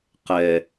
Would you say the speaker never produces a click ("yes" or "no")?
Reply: yes